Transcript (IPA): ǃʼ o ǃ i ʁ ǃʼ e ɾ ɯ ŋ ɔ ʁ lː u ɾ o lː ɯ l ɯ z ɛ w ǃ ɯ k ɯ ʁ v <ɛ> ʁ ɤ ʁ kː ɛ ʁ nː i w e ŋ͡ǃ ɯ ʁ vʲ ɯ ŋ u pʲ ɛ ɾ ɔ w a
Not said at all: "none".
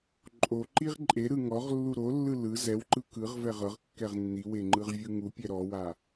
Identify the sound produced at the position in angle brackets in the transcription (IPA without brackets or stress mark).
ɛ